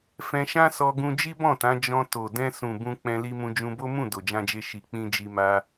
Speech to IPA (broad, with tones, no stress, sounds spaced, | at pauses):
f ɛ̃˧ ʃ ã˦ s ɔ˧ ɡ ũ˧ d͡ʒ i˦ b ɔ̃˦˨ t ã˨˦ d͡ʒ ɔ̃˧ t o˨ d ɛ̃˧ s ũ˨ b ũ˧ k͡p ɛ̃˧ l i˧ m ũ˧ d͡ʒ ũ˧ b o˦ m ũ˦˨ d o˨ d͡ʒ ã˧ d͡ʒ e˧ ʃ i˨ k͡p ĩ˧ d͡ʒ i˧ m a˦